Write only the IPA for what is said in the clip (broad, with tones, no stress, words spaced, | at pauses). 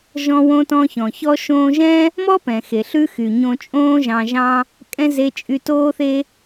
ʒɔ̃˧wõ˧tɔ̃˧çɔ̃˩ çɔ˧ʃõː˧ʒɛ̃˥ | mɔ˥pɛ̃˩xe˩ ɬʉ˥ xy˩ɲõ˧ t͡ʃʼõː˥ ʒɑ̃˧ʒɑ̃˥ | kʼɛ̃˥ ze˧ t͡ʃʼy˧toː˥θe˥